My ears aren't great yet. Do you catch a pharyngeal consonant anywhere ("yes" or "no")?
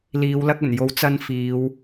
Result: no